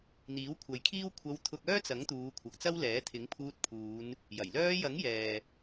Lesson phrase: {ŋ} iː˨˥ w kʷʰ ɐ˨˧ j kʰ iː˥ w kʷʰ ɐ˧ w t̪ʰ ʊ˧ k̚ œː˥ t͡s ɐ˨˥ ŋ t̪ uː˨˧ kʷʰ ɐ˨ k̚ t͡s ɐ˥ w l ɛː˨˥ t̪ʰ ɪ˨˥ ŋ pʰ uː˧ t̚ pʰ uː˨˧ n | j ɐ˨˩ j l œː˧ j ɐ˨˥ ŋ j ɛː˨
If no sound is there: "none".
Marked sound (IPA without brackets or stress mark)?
n̪